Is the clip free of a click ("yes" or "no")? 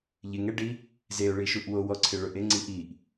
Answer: no